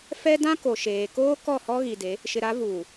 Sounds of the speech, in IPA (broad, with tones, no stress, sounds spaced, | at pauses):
f ɛ˦ d ã˦ k o˨ ʃ eː˨ k oː˦ k ɔ˦˨ h ɔ˦ ɣ i˨ d e˨˦ | ʃ ɪ˨ ɾ a˨˦ v uː˨